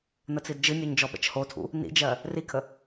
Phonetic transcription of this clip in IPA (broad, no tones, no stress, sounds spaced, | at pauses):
n ə t͡s i d d͡ʒ ɨ nʲ o ɲ d͡ʒ ɔ ɓ ə̰ t͡ʃ h o tʰ ṵ | n ḭ d͡ʒ ɜ | r i kʰ ə